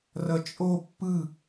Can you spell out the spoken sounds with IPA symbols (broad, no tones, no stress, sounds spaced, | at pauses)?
r ʌ t͡ʃʼ o pː ɯ